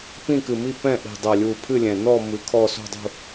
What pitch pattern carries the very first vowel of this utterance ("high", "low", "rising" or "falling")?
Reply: falling